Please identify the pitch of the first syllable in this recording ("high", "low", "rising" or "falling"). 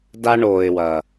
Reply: high